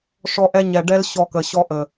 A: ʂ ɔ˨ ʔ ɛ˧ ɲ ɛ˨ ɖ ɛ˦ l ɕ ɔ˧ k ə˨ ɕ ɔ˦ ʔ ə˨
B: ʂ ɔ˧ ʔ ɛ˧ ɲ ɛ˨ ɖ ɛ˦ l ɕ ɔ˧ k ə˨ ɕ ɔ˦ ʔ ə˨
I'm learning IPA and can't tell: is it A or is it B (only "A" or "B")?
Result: B